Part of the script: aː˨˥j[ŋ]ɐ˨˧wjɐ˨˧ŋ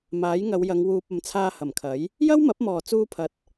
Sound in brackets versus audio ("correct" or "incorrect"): correct